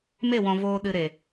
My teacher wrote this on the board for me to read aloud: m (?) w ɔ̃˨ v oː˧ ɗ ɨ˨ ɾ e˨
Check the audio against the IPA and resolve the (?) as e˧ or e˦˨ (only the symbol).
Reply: e˦˨